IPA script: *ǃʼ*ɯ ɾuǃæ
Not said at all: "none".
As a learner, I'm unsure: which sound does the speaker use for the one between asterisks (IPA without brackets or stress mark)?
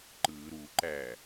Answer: ǃ